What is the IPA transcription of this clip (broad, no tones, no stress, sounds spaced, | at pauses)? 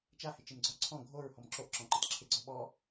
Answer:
t͡ʃ a h ɪ t͡ʃ ɪ m ɡ͡ǀ ɔ ǀʰ ɔ̃ ɡʱ o ɹ h ɔ m ǁ o ʔ ǁ ɔ̃ ǃ ɪ t ǁʰ ɪ ɡ͡ǀ ɔ ɓ ɔ